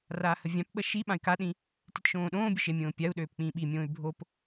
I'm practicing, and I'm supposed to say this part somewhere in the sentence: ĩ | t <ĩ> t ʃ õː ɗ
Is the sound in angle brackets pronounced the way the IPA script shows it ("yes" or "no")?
no